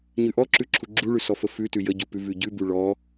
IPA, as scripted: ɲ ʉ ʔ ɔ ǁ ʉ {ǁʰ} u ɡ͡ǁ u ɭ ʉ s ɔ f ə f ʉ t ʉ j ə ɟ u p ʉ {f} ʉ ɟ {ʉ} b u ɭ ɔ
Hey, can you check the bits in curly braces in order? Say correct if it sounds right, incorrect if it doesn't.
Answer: correct, incorrect: v, correct

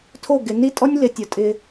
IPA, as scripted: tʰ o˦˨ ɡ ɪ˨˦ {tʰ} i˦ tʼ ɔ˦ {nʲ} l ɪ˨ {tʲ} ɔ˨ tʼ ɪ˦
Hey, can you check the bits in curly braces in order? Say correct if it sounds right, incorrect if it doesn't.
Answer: incorrect: n, correct, correct

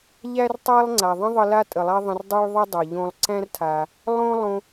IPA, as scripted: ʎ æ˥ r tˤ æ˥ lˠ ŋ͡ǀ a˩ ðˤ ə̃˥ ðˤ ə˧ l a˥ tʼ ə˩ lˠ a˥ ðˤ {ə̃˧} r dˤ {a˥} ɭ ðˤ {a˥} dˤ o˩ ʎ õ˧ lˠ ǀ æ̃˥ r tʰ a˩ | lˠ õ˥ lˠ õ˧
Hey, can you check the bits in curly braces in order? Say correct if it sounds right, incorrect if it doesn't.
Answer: correct, correct, incorrect: ə˥

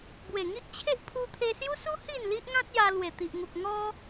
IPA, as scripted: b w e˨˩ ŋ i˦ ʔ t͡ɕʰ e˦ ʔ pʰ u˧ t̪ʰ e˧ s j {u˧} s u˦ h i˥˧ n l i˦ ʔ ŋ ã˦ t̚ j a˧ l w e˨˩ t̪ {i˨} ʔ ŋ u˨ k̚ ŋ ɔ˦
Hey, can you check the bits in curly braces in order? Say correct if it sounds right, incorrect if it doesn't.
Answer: incorrect: u˦, correct

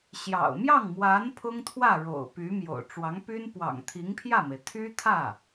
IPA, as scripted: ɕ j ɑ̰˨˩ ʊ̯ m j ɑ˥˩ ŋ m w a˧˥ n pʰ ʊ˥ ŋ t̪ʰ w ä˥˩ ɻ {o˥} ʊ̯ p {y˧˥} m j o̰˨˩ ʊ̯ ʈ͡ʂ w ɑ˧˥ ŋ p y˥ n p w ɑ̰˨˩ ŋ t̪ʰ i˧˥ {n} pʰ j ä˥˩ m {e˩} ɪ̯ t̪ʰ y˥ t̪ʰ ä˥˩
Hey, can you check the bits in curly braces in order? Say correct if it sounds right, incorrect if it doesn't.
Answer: incorrect: o̰˨˩, correct, incorrect: ŋ, correct

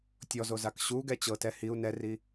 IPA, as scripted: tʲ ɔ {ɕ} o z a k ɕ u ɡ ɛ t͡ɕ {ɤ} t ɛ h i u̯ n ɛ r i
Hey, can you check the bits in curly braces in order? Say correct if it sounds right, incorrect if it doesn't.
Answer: incorrect: z, correct

